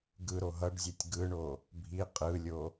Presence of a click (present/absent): absent